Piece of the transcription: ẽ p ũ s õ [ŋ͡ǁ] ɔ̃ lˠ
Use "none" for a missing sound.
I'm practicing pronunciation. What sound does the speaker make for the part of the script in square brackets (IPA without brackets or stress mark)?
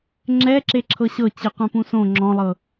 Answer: ŋ͡ǁ